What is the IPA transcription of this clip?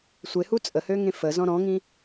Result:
sʷ e h u t͡sʼ ə h ø ŋ ẽ f ə z ɔ̃ ɾ ɔ̃ ŋ ĩ

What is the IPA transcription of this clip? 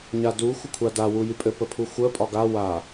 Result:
ɲ a d u xʷ ə kʷʰ a d a w u j y pʼ ɘ p ə pʰ u xʷ əː pʼ ɒ ɡ a w a

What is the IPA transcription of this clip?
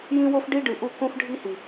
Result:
j ĩ˦ w o˦ f ɖ i˦ ɖ ɨ˨ ʔ u˦˨ k õ˦ f ɖʱ i˦ h i˨

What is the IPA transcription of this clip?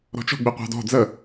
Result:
ɾ ɔ̤ t͡ʃ ɔ̤ ɡ͡b i qʷ ɑ̤ d ɔ̤ d͡z ə

